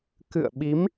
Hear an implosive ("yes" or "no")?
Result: yes